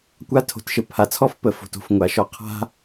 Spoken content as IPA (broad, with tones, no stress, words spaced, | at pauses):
kʷa˦tʰo̤˩tʃə˨ pʰa˩t͡sʰɔ˥f pə˩fo̤˩to̤˩f ŋʷa˩ʃɔ˨ qʰa̤˦